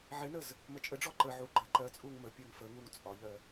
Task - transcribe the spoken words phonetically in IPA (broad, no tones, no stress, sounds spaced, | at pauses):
ʕ ɪ n ə z | m ə t͡ʃʼ ə ɖ͡ʐ ɔ ǃ ə ʕ u ɡ͡ǃ ə ǃ ɜ t͡sʼ u ŋ m ə pʲ ɜ ŋ f ə ŋ u ŋ t͡sʼ ɒ ʎ ɜ